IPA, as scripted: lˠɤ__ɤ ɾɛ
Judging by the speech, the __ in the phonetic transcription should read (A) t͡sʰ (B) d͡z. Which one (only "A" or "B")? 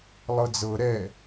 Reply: B